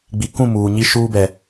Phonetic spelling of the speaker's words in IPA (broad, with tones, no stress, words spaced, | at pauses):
ɡ͡bi˨kũ˦˨ muː˨ɲi˦ ʃuː˦bɛ˨